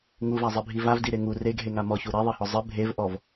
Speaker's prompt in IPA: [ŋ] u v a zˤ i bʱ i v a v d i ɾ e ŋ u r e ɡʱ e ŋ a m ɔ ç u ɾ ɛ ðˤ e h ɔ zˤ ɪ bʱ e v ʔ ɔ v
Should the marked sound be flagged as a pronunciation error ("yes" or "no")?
no